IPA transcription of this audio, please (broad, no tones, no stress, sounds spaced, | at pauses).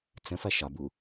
t͡s ə̃ f ɐ ʃ ɒ b u